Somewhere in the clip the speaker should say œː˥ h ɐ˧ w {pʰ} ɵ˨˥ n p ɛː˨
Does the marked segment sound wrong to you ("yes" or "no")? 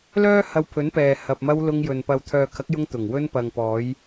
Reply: no